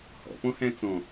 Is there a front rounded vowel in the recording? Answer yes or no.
no